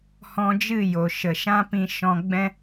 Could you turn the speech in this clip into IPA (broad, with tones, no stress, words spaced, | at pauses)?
hɔ̃˧d͡ʒɨ˦˨jo˨ ʃə˨ʃã˦pĩ˧ʃɔ̃˧ ɡ͡bɛ̃˧